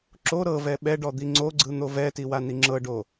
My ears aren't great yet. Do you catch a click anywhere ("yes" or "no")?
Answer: yes